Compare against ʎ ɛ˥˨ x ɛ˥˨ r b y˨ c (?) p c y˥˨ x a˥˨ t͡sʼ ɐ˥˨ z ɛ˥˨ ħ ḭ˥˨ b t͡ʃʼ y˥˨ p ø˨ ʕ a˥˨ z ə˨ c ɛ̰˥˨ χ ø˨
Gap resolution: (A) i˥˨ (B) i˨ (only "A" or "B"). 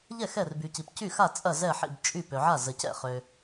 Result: B